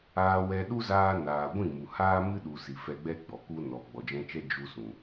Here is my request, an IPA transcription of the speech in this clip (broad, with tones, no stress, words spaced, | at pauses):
aː˧wɛ˧ ɗu˦zaː˧ naː˨ɡʷĩ˦˨mu˨haː˦ mɨ˦ɗu˨ si˨fɛ˧ɡ͡bɛ˦ ɡ͡bɔ˨ ku˧ nɔ˨ ɡ͡bɔ˨d͡ʒɛ̃˧t͡ʃɛ˦ d͡ʒu˧sũ˨